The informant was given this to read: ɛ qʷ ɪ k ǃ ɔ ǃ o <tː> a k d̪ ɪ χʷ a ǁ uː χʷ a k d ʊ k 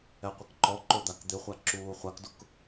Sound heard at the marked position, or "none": d̪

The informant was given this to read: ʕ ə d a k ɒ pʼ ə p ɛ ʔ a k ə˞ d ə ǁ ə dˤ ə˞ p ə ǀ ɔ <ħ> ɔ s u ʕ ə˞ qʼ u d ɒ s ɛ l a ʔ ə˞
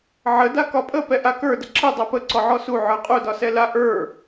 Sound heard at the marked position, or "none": ʕ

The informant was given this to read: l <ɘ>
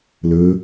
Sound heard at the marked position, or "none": ɘ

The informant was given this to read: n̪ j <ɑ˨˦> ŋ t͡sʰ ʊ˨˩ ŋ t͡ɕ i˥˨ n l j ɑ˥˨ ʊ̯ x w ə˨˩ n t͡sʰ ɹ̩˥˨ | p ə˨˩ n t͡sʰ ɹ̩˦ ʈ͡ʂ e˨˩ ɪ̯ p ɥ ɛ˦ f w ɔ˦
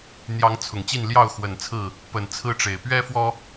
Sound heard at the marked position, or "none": ɑ˨˦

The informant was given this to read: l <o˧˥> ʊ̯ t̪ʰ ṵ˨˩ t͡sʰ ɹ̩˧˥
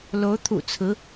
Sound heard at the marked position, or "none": o˧˥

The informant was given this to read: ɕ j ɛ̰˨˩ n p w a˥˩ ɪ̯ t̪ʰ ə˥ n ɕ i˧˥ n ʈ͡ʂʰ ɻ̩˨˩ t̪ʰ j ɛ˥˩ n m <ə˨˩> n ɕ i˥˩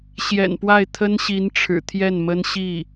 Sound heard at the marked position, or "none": ə˥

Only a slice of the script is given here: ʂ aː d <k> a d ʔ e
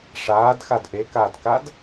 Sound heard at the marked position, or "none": x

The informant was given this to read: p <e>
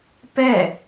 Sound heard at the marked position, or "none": ɛ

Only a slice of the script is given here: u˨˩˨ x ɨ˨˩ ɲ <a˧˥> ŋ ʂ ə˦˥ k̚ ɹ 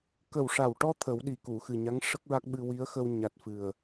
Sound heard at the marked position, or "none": a˧˥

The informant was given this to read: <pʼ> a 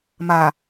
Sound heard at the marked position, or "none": m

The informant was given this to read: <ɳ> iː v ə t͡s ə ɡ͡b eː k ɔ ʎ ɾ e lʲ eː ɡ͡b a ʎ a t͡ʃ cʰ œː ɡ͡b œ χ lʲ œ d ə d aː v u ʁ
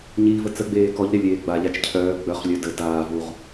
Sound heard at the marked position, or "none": ɲ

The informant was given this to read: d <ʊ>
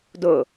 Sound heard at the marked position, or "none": ʊ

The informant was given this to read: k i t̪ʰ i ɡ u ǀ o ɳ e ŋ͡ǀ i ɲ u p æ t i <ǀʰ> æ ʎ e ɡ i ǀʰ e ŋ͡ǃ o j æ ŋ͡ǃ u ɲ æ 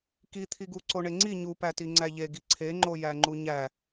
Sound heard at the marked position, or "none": ŋ͡ǀ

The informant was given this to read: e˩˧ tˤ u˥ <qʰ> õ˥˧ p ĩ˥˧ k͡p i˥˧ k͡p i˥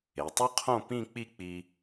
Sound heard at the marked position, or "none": qʰ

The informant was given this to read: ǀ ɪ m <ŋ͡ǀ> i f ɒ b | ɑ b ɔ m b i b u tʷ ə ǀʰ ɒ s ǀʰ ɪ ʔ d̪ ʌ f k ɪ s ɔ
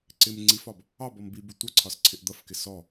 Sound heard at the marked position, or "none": ŋ͡ǀ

